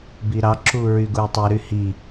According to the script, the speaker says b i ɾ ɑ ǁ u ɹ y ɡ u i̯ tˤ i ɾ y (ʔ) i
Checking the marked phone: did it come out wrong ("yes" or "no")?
yes